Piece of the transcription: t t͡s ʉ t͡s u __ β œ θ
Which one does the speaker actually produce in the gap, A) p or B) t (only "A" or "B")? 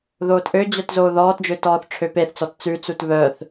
B